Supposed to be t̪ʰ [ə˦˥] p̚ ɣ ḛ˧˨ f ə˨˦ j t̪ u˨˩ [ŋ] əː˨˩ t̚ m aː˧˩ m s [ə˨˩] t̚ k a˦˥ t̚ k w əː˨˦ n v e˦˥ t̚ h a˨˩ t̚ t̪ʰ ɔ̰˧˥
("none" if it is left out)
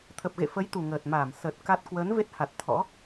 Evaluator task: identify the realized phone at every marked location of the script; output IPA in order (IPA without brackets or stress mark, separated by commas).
ə˨˩, ŋ, ə˨˩